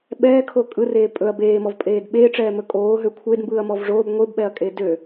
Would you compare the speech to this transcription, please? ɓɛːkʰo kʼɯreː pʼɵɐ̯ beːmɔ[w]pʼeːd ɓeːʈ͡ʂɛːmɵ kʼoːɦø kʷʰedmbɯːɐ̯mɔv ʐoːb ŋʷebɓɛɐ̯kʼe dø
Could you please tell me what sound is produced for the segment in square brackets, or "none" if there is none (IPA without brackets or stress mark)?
v